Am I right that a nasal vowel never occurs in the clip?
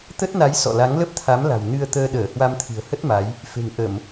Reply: yes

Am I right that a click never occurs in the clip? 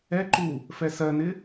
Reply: no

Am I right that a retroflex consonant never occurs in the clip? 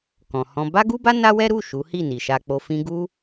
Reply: yes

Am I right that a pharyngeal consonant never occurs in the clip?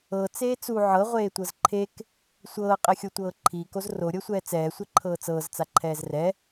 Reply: no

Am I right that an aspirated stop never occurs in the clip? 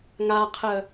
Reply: no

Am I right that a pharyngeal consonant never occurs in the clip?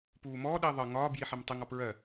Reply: no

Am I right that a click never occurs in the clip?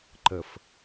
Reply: no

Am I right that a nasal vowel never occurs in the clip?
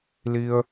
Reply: yes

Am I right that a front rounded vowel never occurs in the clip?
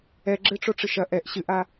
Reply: yes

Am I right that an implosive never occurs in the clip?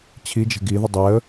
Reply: yes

